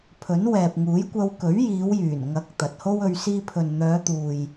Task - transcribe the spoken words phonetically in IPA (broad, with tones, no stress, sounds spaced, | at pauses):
pʰ ɵ˨˥ n w ɛː˨ p̚ ŋ uː˨˥ j kʷ ɐ˧ w k ɵ˨˥ ɥ j iː˨˧ w j yː˨˩ n ŋ ɐ˨˥ k̚ t̪ ɐ˨ t̚ h o˥ w ɵ˧ ɥ s iː˧ pʰ ɵ˨ n n̪ œː˨˧ t̪ uː˨ j